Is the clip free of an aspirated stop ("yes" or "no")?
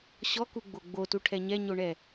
no